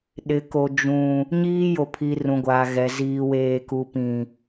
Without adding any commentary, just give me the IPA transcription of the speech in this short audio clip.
ɗɪ˨ko˨ d͡ʒũ˨ | ɲiː˦jo˨pʰi˨ rũ˨ɡʷaː˨ɣɛ˨ ziː˨ weː˨ku˨pĩ˨

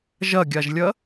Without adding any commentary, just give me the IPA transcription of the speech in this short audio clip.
ʒɐɡʲaʒlʲɐ

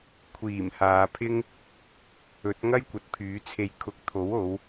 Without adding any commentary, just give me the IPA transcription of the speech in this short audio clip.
kʷʰiː˨˩mhaː˨pʰɪ˥ŋ | ɵ˨˥t̚ŋɐ˥jkʷɐ˨t̚ pʰyː˨˥t͡sʰe˧jkʰʊ˧k̚ t̪ʰo˨˥wo˨˧w

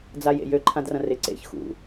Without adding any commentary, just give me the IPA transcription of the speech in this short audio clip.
d͡zajḛjø ǃʰãdrɐ̃rɪ ǀḛç xṵ

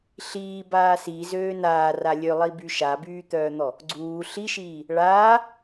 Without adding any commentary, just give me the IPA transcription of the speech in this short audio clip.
ɬiːbaː sizøː naːra lʲølˠiby ʃabyːt̪œːn̪ɔ | ɡ͡ǀuː ɬiʃiː | ɭaː

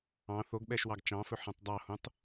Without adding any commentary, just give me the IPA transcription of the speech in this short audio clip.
ɑ̃ θoɡɓɛʃwɑɡ t͡ʃɑ̃fɵħĩtˤ dˤɑhũtˤ

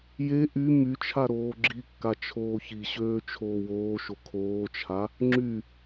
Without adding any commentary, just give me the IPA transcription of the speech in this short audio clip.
je ʔy myt͡ʃʰa ɾoːɡ͡ǁikːa t͡ʃʰoːçiɕøː t͡ʃʰoːwoːʃo kʰoːt͡ʃʰa | ŋ͡ǁy

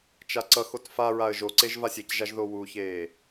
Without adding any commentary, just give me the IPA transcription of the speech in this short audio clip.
t͡ʃaǀʌxot fa ɹaə̯ʒoǀeʒ vasʲecʒaʒ ðowuçeː

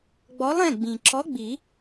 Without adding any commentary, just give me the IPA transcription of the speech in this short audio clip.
ɡ͡bɔ˨˥lˠɛ̃˩˧˩ ɡ͡bĩ˩ ǁɔ˨˥ ɡ͡bi˨˩˦

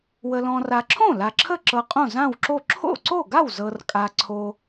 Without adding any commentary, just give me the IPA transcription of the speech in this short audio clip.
wə˨lɔ̃˨ra˨ǁʰõ˥˩ la˨ǁʰə˥˩ǁɤ˨ qʼõ˥˩zã˥˩wǁo˥˩ ǁʰo̰˥˩ǀo˥˩ɡa˥˩w zɤ˨rkʼa˨ ǀʰo˨

